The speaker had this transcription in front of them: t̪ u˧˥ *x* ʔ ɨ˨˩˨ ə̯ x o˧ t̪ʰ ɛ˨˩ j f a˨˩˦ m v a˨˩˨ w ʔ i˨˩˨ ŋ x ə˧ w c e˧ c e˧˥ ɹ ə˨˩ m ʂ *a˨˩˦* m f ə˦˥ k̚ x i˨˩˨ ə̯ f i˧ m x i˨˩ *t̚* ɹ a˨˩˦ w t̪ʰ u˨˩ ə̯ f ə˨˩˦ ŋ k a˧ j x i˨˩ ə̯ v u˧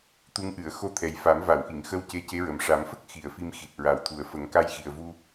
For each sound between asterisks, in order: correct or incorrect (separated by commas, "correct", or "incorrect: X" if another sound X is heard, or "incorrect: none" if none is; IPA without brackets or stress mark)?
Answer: incorrect: ŋ, correct, correct